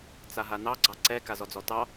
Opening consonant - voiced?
no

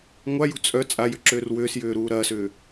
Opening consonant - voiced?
yes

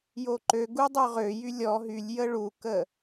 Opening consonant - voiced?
yes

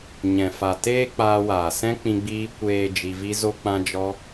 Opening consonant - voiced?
yes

